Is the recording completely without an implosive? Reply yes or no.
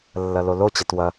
yes